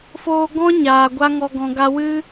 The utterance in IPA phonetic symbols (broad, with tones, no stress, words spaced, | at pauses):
foː˧ɡɔ̃˦ ɲaː˨ɡʷa˦ŋɔ˧ ɡɔ̃˨ɡa˧wɨ˦